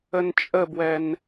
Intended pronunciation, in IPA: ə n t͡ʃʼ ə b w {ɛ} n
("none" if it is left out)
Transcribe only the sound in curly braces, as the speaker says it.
ɛ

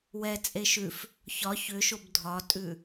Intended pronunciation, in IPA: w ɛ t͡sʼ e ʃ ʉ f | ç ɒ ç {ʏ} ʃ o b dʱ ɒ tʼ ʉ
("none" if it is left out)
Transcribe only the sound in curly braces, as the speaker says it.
ʏ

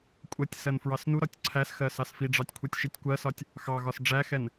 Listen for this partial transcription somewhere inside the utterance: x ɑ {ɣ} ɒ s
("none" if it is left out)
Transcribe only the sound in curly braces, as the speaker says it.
ɣ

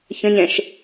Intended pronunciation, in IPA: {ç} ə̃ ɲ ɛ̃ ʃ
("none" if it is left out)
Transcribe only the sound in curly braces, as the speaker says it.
ç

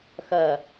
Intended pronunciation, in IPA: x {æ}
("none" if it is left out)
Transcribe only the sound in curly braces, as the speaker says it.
ɐ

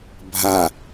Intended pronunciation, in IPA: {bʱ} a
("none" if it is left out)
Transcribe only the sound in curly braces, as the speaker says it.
bʱ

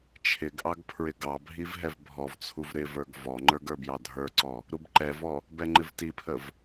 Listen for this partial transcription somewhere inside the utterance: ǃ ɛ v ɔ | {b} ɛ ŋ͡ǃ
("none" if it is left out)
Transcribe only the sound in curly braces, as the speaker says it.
b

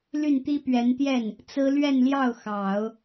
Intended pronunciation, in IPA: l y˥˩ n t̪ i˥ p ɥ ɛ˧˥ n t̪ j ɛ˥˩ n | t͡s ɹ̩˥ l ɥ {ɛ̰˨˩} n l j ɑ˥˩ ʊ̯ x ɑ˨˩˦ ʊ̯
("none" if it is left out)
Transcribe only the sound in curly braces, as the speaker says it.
ɛ˥˧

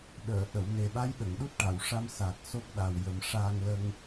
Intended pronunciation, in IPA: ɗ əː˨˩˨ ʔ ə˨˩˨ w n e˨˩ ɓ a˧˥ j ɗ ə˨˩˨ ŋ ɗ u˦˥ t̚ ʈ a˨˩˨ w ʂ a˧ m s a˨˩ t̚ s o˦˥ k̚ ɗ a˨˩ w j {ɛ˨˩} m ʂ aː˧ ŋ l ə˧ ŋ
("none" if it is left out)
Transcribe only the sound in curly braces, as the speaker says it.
ə˨˩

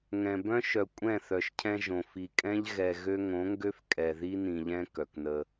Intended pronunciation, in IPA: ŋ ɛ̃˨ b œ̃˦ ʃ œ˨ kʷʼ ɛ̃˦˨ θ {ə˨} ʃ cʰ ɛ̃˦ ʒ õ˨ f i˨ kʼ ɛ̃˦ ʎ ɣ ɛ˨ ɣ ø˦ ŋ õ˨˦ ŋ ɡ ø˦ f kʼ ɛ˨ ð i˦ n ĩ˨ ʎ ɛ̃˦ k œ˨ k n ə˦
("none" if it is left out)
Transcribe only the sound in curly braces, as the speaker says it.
œ˨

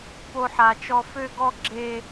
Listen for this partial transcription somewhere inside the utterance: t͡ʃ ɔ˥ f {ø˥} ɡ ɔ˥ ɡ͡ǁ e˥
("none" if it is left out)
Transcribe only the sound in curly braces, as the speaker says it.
ø˥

